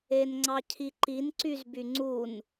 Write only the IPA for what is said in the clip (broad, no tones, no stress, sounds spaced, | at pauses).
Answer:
e n ŋ͡ǀ ɑ cʰ i ǃ i n ǀ y z b y ŋ͡ǀ u n